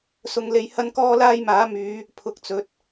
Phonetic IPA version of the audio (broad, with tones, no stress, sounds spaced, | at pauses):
s ʊ˧ ŋ l e˧ j h ɐ˥ n k ɔː˥ l aː˥ j m aː˨˥ m yː˨˧ | pʰ ʊ˧ k̚ t͡s ɵ˨˥ t̚